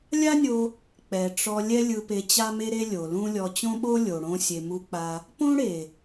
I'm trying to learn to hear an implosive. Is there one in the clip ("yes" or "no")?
yes